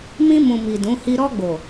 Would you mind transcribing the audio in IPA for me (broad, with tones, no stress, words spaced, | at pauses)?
mĩ˧mũ˨mi˨ dũ˨˦hi˦ ɾɔ˧ɡ͡bo˨